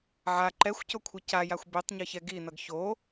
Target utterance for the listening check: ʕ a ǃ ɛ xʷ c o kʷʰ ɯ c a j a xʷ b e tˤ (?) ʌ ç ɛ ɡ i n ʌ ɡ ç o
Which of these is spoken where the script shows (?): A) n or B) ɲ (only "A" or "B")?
B